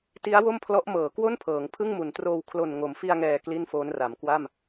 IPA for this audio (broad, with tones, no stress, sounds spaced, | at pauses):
t i˦˥ a̯ w o˥˩ m pʰ l ɔ˦˥ ʔ m ɤː˩˦ k w o˥˩ n pʰ ɤː˩˦ ŋ pʰ ɯ˥˩ ŋ m u˩˦ n t r oː˧ w kʰ l o˨˩ n ŋ o˩˦ m f i˧ a̯ ŋ ɛː˨˩ k l i˥˩ n f oː˦˥ n r a˩˦ m k w a˥˩ m